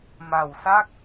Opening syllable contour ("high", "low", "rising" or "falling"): low